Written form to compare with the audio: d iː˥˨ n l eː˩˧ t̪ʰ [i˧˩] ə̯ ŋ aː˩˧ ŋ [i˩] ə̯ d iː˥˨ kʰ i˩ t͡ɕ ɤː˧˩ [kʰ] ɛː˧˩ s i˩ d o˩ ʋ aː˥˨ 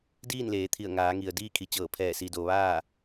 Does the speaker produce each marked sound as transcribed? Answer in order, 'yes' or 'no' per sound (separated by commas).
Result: yes, yes, no